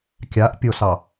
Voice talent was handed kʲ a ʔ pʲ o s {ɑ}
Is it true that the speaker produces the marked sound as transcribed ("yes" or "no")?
yes